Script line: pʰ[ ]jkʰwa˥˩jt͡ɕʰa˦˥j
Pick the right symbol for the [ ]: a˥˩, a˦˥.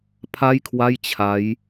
a˥˩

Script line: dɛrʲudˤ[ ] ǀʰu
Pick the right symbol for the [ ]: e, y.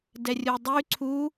y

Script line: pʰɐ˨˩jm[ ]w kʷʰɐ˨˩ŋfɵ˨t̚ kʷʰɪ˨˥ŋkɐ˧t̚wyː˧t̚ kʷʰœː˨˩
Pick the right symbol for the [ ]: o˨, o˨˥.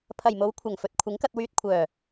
o˨˥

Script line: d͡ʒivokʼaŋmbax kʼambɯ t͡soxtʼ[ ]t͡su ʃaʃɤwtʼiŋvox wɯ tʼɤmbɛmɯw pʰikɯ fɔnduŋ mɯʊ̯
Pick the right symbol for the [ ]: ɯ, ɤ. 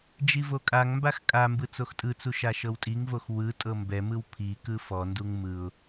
ɯ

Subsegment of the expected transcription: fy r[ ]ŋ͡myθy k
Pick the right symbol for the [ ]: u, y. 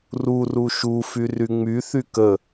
y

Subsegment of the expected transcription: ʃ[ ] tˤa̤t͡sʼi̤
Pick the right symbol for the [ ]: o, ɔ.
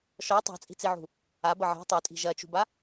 ɔ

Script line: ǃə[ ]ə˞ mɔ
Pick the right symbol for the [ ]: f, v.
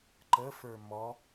f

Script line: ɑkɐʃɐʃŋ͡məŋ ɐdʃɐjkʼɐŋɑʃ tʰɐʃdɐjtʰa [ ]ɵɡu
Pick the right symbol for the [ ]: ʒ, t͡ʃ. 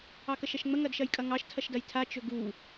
t͡ʃ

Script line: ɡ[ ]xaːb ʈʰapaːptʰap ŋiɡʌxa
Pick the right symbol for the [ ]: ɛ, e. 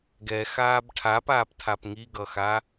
ɛ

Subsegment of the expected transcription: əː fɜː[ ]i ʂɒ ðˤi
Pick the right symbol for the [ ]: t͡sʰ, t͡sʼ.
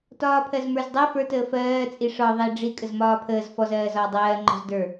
t͡sʼ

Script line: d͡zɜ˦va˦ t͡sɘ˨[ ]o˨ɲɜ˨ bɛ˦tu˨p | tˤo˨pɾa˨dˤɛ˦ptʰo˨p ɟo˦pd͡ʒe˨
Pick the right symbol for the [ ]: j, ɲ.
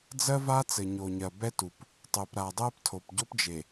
ɲ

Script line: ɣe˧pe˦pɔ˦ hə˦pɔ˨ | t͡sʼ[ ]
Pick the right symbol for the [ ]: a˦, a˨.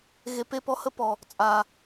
a˨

